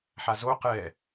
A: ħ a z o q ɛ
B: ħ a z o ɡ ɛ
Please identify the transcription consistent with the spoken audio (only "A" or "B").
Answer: A